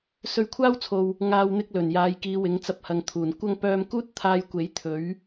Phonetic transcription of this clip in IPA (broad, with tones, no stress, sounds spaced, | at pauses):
s ɵ˧ ɥ kʷʰ aː˥ w t͡sʰ o˨ w | ŋ aː˧ w n̪ ɪ˧ k̚ l ɵ˨˩ n j aː˨˧ j k iː˨˧ w ɪ˨˥ ŋ t͡s ɐ˧ p̚ h ɐ˨ ŋ t̪ʰ uː˨˩ n kʷ ɐ˥ ŋ p œː˧ m k uː˥ t̚ t̪ʰ aː˧ j kʷ e˨˥ j t̪ʰ ɵ˨˥ ɥ